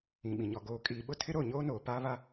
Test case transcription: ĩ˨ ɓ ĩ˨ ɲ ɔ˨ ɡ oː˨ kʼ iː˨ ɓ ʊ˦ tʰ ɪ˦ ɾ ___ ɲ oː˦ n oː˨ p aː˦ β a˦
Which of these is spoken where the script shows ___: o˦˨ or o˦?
o˦˨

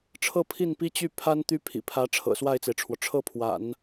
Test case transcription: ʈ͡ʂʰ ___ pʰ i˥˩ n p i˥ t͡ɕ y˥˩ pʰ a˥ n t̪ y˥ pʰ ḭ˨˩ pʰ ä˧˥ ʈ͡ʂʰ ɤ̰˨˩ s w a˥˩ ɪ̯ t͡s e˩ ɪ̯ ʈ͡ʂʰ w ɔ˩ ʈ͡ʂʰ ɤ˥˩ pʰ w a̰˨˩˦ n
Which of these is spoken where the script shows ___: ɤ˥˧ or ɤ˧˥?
ɤ˥˧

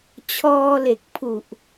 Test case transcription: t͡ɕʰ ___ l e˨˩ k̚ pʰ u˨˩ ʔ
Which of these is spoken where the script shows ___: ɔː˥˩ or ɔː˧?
ɔː˧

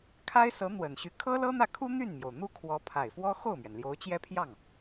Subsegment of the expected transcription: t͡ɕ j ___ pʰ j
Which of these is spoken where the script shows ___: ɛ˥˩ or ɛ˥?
ɛ˥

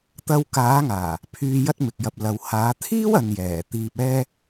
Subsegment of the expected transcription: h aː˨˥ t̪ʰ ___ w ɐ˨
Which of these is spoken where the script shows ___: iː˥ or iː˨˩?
iː˥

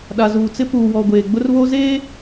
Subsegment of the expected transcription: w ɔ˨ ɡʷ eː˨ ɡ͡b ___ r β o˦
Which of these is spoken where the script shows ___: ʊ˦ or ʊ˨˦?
ʊ˦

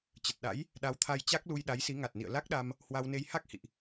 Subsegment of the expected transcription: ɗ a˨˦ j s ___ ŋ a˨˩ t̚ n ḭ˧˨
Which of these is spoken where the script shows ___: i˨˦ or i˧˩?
i˨˦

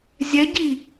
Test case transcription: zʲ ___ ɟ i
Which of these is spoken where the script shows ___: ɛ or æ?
ɛ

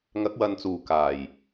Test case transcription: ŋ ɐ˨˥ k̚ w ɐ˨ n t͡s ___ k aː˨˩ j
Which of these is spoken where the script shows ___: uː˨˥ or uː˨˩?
uː˨˩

